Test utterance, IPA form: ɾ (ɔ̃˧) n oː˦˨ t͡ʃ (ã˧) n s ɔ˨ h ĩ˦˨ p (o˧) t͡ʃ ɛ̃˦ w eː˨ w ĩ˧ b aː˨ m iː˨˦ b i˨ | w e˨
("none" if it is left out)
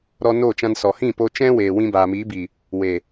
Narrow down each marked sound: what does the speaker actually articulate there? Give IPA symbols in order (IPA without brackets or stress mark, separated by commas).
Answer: ɔ˧, ã˧, o˧